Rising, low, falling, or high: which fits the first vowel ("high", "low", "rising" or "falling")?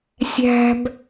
high